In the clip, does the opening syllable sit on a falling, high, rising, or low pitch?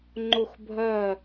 falling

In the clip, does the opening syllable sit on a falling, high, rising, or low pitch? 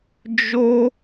high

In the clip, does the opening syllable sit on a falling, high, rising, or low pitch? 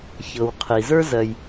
low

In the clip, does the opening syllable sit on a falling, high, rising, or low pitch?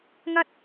high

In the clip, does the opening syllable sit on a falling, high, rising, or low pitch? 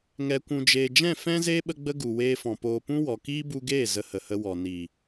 low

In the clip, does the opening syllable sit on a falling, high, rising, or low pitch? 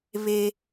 high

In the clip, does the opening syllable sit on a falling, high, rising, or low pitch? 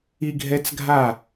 high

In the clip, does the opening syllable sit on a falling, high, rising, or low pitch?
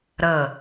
falling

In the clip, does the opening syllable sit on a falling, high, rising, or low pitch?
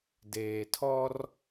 low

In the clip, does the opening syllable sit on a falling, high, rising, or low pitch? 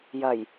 low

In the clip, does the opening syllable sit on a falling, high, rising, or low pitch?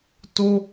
high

